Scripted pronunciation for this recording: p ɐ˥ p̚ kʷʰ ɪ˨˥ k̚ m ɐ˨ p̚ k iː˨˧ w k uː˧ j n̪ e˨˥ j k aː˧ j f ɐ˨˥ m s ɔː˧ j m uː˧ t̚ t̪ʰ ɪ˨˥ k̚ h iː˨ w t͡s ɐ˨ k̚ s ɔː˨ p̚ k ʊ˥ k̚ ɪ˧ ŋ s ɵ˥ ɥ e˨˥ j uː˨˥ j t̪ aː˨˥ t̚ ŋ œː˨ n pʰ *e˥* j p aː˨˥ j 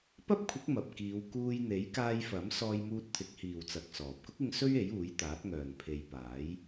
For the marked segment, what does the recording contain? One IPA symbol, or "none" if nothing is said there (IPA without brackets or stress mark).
e˨˧